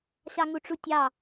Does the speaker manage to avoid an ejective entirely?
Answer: yes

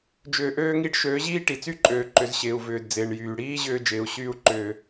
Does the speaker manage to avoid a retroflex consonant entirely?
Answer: no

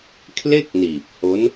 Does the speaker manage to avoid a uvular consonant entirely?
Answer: yes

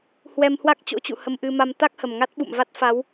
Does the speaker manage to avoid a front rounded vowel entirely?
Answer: yes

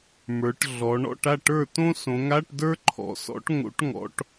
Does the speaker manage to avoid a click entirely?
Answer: no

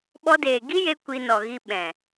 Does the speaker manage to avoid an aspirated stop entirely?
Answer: yes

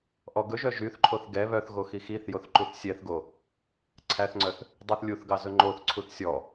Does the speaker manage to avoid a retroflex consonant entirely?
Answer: yes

